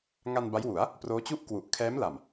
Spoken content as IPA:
ŋ a˧ n b a˦˥ j w u˩˦ a̯ | p r oː˦˥ t͡ɕ u˥˩ ʔ k w u˨˩ ʔ kʰ ɛː˦˥ m l a˨˩ m

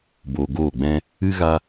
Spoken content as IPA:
b o˧ ɡ oː˦˨ ɡ͡b ɛ̃˦ | ɨ˦ ɣ a˦

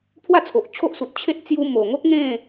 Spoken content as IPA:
pʰ w a˥˧ t͡sʰ o˨ ʔ t͡ɕʰ o˦ ʔ s u˨ t̚ t͡ɕʰ e˦ t̚ t͡s j u˧ m o˨˩ ŋ o˦ k̚ ŋ ẽ˥˧

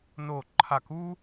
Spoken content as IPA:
n o˥˧ ǃʰ a˥˧ k u˥

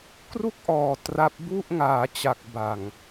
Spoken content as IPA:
k r u˥˩ k̚ ʔ ɔː˨˩ t r a˦˥ p̚ b u˥˩ ʔ ŋ aː˩˦ t͡ɕ a˨˩ k̚ b a˨˩ ŋ

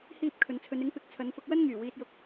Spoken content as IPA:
h iː˥ p̚ kʰ ɵ˨˧ n t͡sʰ ɵ˨˧ n ɪ˨˥ ŋ p ɪ˨˥ k̚ t͡sʰ ɐ˨˧ n f ʊ˧ k̚ w ɐ˥ n ŋ yː˨˩ w iː˧ t̚ j ʊ˧ k̚

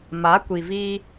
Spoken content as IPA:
m a˨˦ kʷ i˨ v iː˦

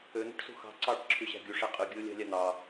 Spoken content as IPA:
ø n̪ ṳ ʈ s ṳ x ɑ̤ ǀ ɑ ʈ ǁʰ y ɕ æ̤ ɡʲ u ʂ æ qʼ ɯ ɡʲ ɯ ʊ̯ lʲ ɑ̤ lʲ ɑ n̪ ɑ

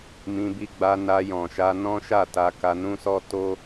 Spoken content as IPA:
m ĩ˧ b i˧ ɡ͡b a˧ n a˧ j ɔ̃˨ ʃ a˧ n ɔ̃˦ ʃ a˦˨ t a˧ k a˧ n ũ˦ s ɔ˦ t o˦

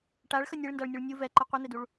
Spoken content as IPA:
ʈ a ɭ x ə nʲ e ɭ n d a ɭ nʲ u ɭ nʲ u v ɛ ǃ ʌ qʷ e n̪ e d u ɭ

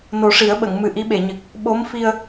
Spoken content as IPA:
n o˨˩˦ ʂ i˨˩˦ ə̯ ɓ ə˨˩˨ ŋ m ɨ˨˩ ʔ i˧˥ ɓ e˨˩˨ ɲ ɨ˨˩ k̚ | ɓ o˧˥ m f i˧ ə̯

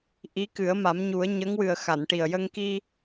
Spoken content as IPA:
ʔ i˧˥ k ɨ˨˩˦ ə̯ m a˨˩˦ m ɲ u˨˩˦ ə̯ ɲ ə˧˥ ŋ w ɨ˨˩ ə̯ x a˨˩˨ n ʈ i˨˩ ə̯ j ə˧ ŋ k i˧

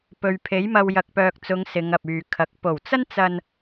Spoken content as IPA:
p ɵ˨ ɥ pʰ e˨˥ j m ɐ˧ w j ɐ˨ k̚ p œː˨ k̚ t͡s ʊ˨˧ ŋ s ɪ˨˧ ŋ ɐ˨ p̚ yː˨ kʰ ɐ˨˥ k̚ p o˨˩ w t͡s ɐ˥ n t͡s ɐ˧ n

